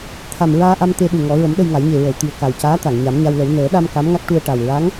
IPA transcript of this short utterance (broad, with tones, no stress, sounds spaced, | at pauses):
t̪ʰ a˨˩ m ɹ aː˧ ʔ a˧ m t̪ e˧ ɗ u˨˩ ŋ ɔ˨˩˦ ɹ ə˨˩˦ m ɗ ə˧ j ŋ a˨˩˦ j ɲ e˨˩ ɹ ə˨˩˨ w t̪ i˨˩ ə̯ k a˨˩ w c aː˧˥ t̪ a˨˩˨ ŋ ɲ a˨˩˦ m ɲ a˧ w l ə˨˩˦ w n əː˨˩˦ ɗ a˧ m k a˧˥ m ŋ a˦˥ k̚ ʈ u˧ ə̯ ʈ a˨˩ w ɹ a˧˥ ŋ